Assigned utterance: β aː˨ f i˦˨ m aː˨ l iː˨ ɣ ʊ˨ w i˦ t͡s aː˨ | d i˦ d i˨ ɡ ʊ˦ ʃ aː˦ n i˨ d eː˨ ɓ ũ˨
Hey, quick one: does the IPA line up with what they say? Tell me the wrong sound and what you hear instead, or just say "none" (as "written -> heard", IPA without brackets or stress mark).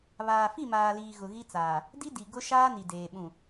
w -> ɣ